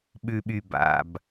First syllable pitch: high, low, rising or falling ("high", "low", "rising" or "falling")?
low